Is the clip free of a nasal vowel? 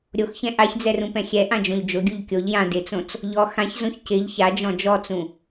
no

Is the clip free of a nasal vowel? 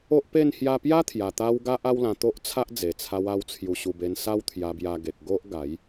no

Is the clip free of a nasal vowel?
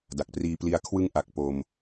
yes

